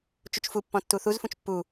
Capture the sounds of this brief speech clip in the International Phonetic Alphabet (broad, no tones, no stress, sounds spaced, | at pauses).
t͡ʃ u t͡ʃ f u pː ɔ̃ tː u θ u z f ũ t͡ʃ pː u